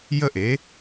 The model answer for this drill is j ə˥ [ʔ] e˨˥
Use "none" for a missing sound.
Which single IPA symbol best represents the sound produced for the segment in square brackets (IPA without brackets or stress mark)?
ʔ